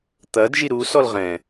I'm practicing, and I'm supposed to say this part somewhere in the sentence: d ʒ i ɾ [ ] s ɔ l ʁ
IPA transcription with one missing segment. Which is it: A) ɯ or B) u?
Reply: B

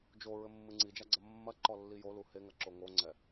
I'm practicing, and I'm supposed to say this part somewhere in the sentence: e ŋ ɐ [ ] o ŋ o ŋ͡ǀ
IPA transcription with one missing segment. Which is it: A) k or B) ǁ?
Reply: B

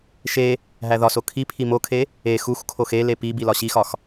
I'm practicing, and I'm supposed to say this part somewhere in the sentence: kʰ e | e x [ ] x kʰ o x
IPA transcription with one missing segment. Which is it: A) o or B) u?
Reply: B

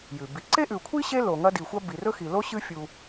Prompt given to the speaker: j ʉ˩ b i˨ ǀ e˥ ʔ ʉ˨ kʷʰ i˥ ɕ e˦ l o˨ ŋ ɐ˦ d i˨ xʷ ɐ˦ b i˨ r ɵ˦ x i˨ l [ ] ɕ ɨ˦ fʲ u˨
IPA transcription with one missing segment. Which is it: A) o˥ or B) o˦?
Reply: A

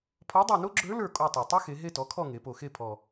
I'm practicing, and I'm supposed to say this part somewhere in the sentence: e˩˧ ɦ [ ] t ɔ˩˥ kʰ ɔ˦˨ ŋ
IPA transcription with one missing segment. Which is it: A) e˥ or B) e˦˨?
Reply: B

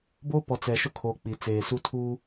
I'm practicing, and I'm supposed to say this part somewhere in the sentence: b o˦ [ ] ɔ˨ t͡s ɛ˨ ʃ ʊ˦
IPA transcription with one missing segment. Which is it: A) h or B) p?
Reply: B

